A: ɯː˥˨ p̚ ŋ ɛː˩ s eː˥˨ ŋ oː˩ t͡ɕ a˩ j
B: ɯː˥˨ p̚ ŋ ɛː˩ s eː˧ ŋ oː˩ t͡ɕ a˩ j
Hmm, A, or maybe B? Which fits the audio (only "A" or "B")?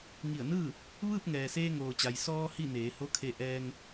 B